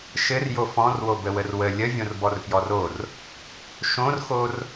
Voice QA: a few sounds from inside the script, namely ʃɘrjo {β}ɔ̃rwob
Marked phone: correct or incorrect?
incorrect: f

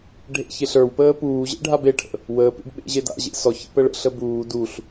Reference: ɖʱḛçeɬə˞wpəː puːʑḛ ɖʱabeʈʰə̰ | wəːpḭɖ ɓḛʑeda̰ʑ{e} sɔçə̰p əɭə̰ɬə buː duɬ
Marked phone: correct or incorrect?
incorrect: ḛ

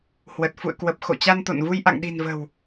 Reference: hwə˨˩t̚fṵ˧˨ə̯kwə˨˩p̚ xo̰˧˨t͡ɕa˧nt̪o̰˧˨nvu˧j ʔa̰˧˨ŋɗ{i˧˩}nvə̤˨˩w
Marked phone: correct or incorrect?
incorrect: i̤˨˩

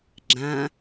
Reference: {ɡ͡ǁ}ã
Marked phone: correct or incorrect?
correct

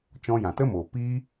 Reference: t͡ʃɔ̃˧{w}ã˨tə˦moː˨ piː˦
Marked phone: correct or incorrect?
incorrect: j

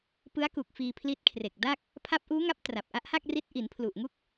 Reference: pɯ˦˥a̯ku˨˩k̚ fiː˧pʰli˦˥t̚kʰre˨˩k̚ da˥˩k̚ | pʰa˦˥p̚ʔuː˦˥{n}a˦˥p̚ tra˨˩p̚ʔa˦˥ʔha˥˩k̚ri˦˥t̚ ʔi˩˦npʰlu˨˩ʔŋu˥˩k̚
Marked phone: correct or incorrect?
incorrect: ŋ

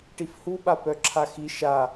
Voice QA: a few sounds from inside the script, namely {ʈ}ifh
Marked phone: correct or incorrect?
correct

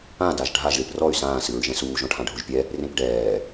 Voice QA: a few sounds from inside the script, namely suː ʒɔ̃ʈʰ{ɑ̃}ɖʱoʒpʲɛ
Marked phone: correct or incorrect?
incorrect: ã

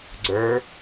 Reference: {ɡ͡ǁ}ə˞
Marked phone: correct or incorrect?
incorrect: ɡ͡ǀ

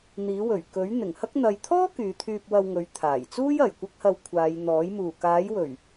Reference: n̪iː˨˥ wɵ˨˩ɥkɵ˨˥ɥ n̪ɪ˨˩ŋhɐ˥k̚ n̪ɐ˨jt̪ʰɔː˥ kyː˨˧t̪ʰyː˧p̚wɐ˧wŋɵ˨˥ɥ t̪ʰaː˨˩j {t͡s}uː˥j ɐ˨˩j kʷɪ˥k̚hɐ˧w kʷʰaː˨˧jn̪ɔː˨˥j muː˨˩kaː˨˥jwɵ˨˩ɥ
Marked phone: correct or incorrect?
correct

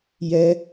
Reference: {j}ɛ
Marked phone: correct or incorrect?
correct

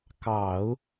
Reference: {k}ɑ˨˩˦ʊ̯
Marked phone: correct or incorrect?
correct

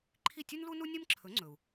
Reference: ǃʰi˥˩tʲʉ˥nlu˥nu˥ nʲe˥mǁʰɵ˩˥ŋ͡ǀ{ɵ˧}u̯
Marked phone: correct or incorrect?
incorrect: ɵ˩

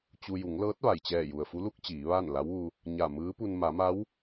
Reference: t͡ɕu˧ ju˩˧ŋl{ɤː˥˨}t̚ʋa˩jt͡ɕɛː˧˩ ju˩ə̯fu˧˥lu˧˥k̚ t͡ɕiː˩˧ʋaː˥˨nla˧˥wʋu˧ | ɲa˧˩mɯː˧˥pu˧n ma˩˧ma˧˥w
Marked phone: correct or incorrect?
incorrect: ɤː˧˥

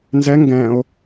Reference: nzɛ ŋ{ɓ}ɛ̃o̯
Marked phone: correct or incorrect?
incorrect: ɡ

